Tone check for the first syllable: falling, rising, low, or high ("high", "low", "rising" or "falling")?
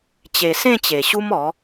low